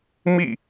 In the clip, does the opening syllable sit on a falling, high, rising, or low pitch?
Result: falling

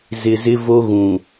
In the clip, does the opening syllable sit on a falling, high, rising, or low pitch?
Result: low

